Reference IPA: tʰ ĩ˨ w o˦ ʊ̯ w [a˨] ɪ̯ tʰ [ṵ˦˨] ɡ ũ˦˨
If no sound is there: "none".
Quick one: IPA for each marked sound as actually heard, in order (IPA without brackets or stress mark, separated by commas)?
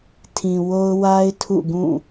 a˦, ṵ˦˨